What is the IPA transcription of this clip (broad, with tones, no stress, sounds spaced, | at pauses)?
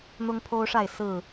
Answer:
n̪ ʊ˦ ŋ pʰ o˦ ʊ̯ ʂ a˥˨ ɪ̯ s ɹ̩˥˨